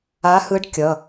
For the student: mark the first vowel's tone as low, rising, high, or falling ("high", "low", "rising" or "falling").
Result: rising